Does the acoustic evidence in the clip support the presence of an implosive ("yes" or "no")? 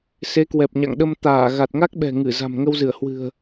yes